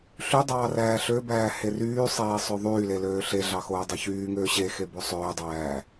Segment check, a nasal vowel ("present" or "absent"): absent